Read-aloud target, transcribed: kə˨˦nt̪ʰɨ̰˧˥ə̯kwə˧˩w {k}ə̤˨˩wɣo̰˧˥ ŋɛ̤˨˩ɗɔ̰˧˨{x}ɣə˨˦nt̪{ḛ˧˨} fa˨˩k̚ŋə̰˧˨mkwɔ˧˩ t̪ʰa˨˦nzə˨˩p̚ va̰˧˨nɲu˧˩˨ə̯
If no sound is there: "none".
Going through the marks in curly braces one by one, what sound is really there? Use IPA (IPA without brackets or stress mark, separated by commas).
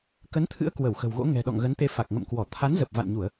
x, ŋ, e˧